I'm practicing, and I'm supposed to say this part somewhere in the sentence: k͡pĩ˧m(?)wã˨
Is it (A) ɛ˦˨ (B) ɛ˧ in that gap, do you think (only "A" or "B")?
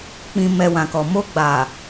B